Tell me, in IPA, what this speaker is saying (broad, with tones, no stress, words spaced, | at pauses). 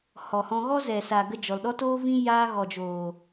hɔ˨hɔ̃˧ ɣɔ˦zɛ˨sa˨ ɡə˦d͡ʒɔ˨l ɗɔ˦toː˦vĩ˦ jaː˦ ɣɔ˨d͡ʒoː˨